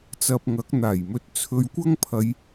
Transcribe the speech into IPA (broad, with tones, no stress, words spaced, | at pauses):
t͡sɐ˧p̚ŋɐ˨˥k̚ n̪aː˨˩jmɵ˧t̚t͡sʰɵ˧ɥkʷɐ˥ŋ pʰɐ˨˧j